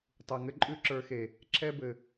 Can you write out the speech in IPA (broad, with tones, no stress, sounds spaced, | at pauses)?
tˤ u˨ ŋ ɘ˦ ǃʼ ʉ˦ ǁ ə˞˧ x e˨ | ǁʰ ɛ˦ b ɘ˨